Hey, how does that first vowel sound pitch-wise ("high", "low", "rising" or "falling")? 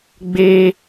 high